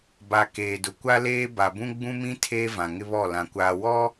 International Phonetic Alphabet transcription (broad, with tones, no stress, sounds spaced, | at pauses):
b a˨ k eː˨ d ʊ˨ kʷ a˦ l eː˦ b a˨ b ũ˦ ɡ͡b ũ˦ m ĩ˦ tʰ eː˦ v ã˨ ŋ ɪ˦ β ɔ˦˨ l ã˨ kʷ aː˨ w ɔ˦